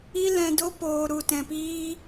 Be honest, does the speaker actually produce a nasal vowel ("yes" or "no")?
yes